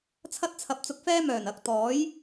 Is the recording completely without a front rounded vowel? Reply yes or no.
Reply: no